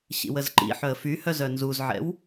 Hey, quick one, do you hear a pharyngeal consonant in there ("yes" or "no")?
yes